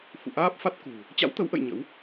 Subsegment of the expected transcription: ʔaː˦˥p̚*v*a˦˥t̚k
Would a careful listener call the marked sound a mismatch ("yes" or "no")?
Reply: yes